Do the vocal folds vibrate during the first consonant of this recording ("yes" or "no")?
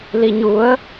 yes